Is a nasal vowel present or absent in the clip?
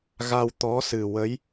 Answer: absent